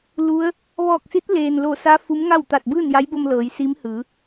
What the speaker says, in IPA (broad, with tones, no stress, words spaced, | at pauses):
lu˧˥ə̯ | ʋɔː˧˩k̚si˧˥t̚ leː˩nlo˧˩sa˧˥ fu˧˥mŋa˥˨w t̪a˧˩t̚bɯː˥˨nja˧˥jbo˧m lɤː˩˧jsi˧˥mhɯː˩˧